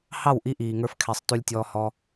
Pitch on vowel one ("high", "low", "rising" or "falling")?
falling